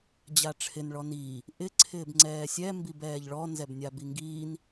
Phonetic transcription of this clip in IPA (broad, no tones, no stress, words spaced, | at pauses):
d͡ʑaʈ͡ʂʰɪn ɭɔniː | ʔɪ ǀʰɪːbŋ͡ǀɛːsʲɛ mbibɛːʎɭɔ nzɛbnʲabiŋɡiːn